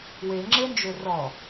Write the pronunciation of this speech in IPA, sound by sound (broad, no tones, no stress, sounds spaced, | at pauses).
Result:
w e ŋ͡ǁ e n d͡ʒ ø r ɔ